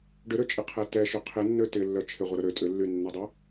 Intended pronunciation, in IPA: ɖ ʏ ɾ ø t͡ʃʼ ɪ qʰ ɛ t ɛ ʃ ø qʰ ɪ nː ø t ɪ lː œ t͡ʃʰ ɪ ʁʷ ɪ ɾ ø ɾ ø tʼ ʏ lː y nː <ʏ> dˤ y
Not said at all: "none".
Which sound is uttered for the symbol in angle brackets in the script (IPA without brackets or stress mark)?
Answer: ɛ